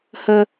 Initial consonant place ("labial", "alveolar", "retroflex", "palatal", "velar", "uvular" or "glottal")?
glottal